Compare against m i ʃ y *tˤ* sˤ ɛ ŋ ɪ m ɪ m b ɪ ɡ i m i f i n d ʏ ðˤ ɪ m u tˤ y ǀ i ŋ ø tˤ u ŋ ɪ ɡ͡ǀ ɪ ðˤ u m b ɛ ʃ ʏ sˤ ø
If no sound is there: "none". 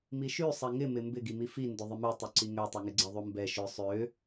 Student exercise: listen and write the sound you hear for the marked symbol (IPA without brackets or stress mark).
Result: none